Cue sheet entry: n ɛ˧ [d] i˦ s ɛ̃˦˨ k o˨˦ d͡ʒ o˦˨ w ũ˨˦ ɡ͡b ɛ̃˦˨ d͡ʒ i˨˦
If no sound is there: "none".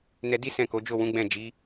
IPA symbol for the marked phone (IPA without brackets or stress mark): d